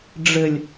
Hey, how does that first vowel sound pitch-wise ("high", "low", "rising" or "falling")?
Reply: low